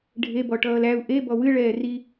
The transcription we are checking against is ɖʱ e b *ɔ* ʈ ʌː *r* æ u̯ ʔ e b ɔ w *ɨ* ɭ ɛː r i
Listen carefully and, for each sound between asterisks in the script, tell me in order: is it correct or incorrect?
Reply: correct, incorrect, correct

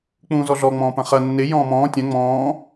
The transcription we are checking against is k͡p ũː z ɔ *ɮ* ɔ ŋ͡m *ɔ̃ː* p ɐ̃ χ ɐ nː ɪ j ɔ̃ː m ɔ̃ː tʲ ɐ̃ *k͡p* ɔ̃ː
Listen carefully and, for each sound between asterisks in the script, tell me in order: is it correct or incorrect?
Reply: correct, correct, incorrect

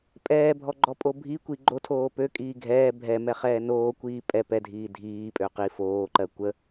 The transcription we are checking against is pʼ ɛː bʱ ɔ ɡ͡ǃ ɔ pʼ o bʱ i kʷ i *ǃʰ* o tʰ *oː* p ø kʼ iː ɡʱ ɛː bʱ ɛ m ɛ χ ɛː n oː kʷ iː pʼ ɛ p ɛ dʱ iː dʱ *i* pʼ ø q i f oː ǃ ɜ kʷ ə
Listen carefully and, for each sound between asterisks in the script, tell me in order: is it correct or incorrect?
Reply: incorrect, correct, incorrect

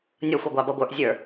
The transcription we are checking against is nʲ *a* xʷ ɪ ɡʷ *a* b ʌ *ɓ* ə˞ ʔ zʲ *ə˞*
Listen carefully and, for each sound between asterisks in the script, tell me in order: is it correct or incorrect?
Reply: incorrect, incorrect, incorrect, correct

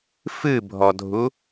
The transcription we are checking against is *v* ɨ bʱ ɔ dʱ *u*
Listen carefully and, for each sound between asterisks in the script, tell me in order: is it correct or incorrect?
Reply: incorrect, correct

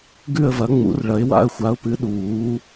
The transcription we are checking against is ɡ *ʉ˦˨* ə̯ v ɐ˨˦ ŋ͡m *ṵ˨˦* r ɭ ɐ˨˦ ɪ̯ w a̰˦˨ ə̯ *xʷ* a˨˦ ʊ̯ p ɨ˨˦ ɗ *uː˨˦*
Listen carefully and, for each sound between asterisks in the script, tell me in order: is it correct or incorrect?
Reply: correct, correct, correct, correct

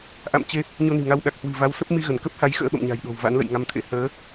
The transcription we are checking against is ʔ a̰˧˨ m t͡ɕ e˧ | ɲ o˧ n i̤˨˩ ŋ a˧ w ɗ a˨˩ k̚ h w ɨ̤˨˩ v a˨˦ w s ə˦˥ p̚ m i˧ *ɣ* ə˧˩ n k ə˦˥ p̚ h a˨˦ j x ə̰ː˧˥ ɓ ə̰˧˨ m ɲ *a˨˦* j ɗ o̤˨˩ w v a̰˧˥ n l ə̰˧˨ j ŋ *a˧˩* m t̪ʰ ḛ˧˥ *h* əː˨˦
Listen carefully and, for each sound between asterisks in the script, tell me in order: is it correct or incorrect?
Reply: correct, incorrect, incorrect, correct

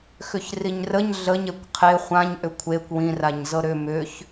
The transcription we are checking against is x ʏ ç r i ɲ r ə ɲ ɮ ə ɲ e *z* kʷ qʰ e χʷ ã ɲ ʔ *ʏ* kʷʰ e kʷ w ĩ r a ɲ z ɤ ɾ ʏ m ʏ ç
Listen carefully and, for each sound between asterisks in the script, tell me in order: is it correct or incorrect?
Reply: incorrect, correct

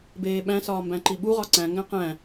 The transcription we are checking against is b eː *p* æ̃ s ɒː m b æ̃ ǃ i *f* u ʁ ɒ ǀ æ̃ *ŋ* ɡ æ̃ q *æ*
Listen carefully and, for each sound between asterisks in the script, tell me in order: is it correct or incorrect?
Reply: incorrect, incorrect, correct, incorrect

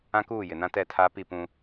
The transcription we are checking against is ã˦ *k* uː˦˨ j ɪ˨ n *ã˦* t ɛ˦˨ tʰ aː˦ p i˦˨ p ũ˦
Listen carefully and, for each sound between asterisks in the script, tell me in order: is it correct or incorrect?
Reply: correct, correct

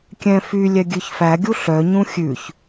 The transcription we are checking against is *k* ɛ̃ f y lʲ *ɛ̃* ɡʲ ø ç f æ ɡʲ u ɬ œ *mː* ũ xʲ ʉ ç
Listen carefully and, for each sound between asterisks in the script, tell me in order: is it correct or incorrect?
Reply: incorrect, incorrect, incorrect

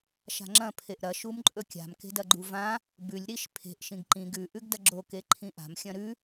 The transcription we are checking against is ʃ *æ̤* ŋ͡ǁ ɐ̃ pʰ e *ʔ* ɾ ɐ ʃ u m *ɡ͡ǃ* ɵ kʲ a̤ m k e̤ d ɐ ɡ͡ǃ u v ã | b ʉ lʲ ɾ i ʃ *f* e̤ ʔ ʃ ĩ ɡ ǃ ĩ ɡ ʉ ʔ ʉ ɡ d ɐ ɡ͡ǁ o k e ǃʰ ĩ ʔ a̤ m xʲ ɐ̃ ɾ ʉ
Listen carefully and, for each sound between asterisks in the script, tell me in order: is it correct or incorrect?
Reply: incorrect, correct, incorrect, incorrect

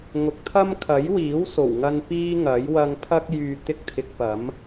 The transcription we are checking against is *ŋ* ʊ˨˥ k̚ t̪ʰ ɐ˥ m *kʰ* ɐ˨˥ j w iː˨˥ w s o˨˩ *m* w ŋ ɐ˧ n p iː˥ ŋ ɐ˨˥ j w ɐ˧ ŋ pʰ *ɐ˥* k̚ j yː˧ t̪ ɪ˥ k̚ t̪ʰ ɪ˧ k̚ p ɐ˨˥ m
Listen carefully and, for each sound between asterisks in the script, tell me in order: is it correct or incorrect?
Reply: correct, correct, incorrect, correct

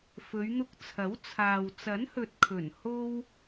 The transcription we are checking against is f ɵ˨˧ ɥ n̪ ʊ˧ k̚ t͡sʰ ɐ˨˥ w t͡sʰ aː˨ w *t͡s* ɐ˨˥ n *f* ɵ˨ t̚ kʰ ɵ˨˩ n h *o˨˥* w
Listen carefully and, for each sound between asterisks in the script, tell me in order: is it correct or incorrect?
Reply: correct, incorrect, incorrect

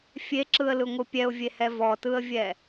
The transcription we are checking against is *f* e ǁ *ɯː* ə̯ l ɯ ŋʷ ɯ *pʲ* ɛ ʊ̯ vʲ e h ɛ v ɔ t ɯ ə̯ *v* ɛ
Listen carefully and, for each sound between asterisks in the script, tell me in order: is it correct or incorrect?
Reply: incorrect, incorrect, correct, incorrect

